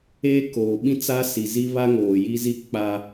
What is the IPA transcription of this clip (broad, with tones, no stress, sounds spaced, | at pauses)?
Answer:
eː˦ k oː˨ ɓ ĩ˦ t͡s a˦ s i˨ z i˦ β a˦ ŋ oː˨ j i˦ z i˦ k͡p a˦